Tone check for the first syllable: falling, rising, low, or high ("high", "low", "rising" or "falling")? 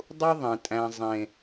high